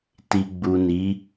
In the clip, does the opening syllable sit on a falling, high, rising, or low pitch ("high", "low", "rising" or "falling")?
low